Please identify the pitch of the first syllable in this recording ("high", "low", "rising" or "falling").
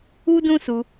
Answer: high